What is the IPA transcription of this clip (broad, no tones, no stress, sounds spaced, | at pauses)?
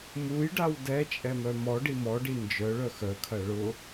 m u j ɖ a w d ɛ t͡ʃʼ ɛ m œ m ɔ ɖ i m ɔ ɖ i n d͡ʒ œ ɭ œ x œ kʰ ɐ ɭ ʊ